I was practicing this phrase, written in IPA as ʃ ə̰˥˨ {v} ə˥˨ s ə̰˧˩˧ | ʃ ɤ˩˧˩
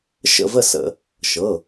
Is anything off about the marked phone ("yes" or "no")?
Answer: no